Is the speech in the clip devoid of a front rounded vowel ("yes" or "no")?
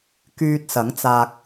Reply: no